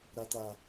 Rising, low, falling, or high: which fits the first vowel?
high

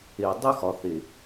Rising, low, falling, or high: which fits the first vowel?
low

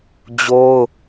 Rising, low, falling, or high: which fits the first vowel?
high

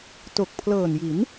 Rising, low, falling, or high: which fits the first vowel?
low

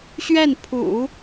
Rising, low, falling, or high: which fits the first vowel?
falling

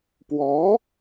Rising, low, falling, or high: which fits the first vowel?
rising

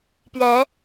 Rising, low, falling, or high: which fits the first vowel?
rising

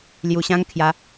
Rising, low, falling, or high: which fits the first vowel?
low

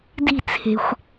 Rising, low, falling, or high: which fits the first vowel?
falling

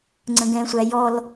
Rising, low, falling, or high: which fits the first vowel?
high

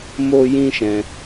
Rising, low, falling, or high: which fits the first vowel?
high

